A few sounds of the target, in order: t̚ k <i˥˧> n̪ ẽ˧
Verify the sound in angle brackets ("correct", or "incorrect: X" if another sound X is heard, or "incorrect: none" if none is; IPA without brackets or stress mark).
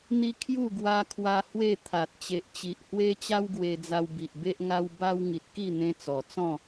correct